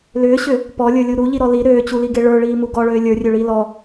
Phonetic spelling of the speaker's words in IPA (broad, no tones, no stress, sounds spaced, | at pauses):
l ʏː ɕ ʏ | p ɔ lʲ ə˞ lʲ u ɾ u ʎ i ɾ ɔ l i ɾ øː t͡ɕ u l i ɡ e ɭ ə˞ ɭ iː m u ɡ ɔ ɭ øː lʲ ə˞ rʲ ø ɭ iː l ɔ